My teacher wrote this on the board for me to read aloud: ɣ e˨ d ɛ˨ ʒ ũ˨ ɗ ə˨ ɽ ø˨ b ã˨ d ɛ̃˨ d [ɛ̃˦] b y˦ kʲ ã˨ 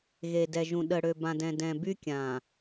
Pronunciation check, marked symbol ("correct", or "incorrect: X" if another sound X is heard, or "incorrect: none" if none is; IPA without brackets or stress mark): incorrect: ɛ̃˨